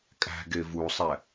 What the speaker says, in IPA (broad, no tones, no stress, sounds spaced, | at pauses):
kʼ æ̤ ɡ e v u sˤ æ